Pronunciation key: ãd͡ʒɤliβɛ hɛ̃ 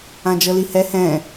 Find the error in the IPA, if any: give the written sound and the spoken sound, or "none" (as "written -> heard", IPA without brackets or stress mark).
β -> h